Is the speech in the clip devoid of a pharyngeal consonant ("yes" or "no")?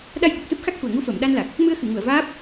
yes